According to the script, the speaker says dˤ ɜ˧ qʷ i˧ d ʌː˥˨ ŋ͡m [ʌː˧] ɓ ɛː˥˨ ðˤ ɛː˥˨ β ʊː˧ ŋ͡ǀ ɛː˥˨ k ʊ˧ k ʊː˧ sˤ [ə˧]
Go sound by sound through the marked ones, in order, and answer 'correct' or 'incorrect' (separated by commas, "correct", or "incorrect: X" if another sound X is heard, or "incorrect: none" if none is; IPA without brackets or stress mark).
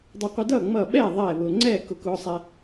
incorrect: ʌː˥˨, incorrect: ɛ˧